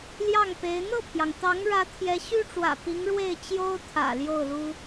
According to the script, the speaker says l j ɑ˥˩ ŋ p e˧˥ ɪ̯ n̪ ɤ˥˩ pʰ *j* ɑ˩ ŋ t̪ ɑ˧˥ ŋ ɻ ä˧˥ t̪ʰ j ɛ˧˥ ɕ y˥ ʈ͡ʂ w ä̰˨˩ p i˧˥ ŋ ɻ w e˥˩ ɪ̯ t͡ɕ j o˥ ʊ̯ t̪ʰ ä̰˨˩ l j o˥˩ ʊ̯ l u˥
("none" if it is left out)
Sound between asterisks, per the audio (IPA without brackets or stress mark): j